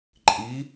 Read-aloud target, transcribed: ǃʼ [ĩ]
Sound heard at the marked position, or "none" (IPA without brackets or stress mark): i